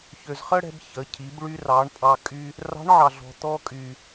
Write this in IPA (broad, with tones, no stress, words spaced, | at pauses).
çø˩zχə˥ɽɛ̤˧b çə˩˧cʰi˩˧b ɭy˧rɑ˩˧ɳ pʼɑ˧ kʼy˧ | rɑ̤˧˥ɳʕɑ˩ɮɔ̤˩ t̪ɔ˧kʼy˩